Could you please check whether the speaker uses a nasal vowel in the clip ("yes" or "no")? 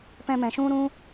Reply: yes